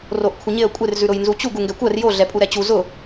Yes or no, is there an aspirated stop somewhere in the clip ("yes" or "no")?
yes